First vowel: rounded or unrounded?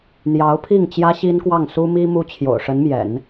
unrounded